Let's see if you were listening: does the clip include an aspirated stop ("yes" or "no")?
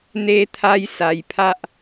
yes